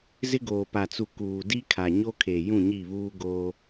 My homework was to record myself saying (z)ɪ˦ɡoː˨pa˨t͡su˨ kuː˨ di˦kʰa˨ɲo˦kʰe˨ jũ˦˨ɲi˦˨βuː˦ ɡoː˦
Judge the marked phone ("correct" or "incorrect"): correct